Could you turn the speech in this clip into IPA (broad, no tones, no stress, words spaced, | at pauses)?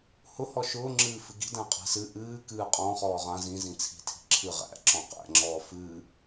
hʊ hɔʃʊː ŋ͡ǁɨːfɨɡi̤ dæ̃qʼæ̤sɨ ʔɨː kɨːqʼɔ̃ χɔːʁã zĩ zĩt͡sʰi̤ tʰi̤ǁʰɨ ʁæ̰ ǁɔ̃qæ̰ ŋ͡ǁɔːfɨː